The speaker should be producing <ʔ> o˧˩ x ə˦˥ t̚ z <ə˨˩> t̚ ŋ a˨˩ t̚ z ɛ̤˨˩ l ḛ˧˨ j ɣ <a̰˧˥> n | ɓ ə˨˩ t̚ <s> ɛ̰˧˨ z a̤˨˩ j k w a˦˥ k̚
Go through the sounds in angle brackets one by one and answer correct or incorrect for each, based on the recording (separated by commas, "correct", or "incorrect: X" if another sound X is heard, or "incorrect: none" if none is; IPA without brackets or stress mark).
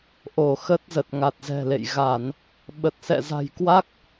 correct, correct, incorrect: a˧˩˨, correct